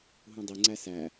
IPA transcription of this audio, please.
ɦ ũ dˤ i ŋ͡ǀ æ s æ

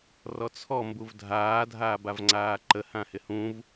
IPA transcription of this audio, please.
r ɔ t͡sʰ ɔ m b u v dʱ aː dʱ aː b a v ŋ͡ǀ aː ǃ ə h ã h ɪ h ũ v

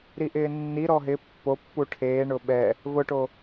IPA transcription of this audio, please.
ɾ i ʔ ɪː nː i ɾ ɔ ɦ ɪ pː o pː u ʈʰ eː ɳ ʊ ɓ ɛ | v ʊ ʈ o

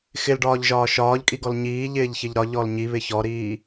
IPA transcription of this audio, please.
x ɪ l ɖ ɒː ʎ ʒ ɒː ʃ ɒː ʎ kʼ i ɡ ɔ l ɲ iː ʎ ɪː ʎ ç ɪ ʎ ɾ ɒ ʎ ɔ l ɲ i β ɪ ç ɔ ɾ iː

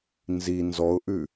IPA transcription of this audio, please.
n z i n z ɔ ʊ̯ ʔ ʉ

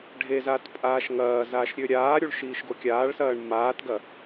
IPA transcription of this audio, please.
ɖʱ e z aː t pʼ aː ʃ ŋ ɐː z aː ʃ ɾʲ ø ɾʲ aː ɾʲ u ɭ ʃ iː ʃ ɡ o kʲ aː ɭ s ɐː ɳ m aː t ɡ ɐ

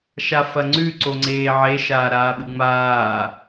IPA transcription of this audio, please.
ʃ a f ɐ ŋ͡ǀ ʉ ǀ o ŋ͡ǀ eː ʕ e ʃ aː ɾ aː ɓ ɨ ŋ͡m aː

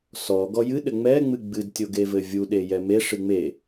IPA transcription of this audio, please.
s ɔ ɡ ɔ j ɨ ɗ ɘ ŋ͡m ɛ ŋ͡m ɨ ɡ͡b ɨ d tʲ o ɡ e v ɘ vʲ u ɗ e j ɛ m e ʂ ɨ ŋ͡m e

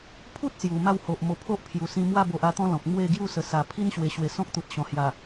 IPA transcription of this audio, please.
pʰ u˦ t̚ s j u˨˩ m a˥˧ w h o˨ ʔ m o˧ pʰ o˦ ʔ pʰ j u˨˩ s ĩ˧ m w a˥˧ b o˨ ʔ a˧ t̪ ɔ̃˦ l ɔ̃˨ k̚ m w e˥˧ ɡ j u˥˧ s ə˨˩ s a˨˩ pʰ i˦ n ɕ w e˨˩ ɕ w e˨˩ s ɔ̃˦ k̚ t̪ u˨ t̚ ɕ ɔ̃˨˩ h j a˨˩

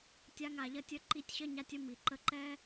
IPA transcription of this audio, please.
tʲ a˧ ŋ a˨ ʎ ɐ˦ tʲ ə˦ ǃ i˧ tʲ ɕ ɐ˦ ɲ a˧ tʲ ə˦ m i˨ ǃ ə˧ ǃ ɛ˦

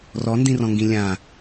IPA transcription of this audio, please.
r ɔ n d ĩ r ɔ̃ ŋ ɡ ĩ lʲ ã

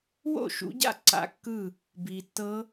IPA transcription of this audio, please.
w o̰˥˩ ʃ ṵ˨˦ ɟ a̰˥˩ ǀ a̰˦˥ kː ɯ˥˩ | b iː˨ tː ɤ˦˥

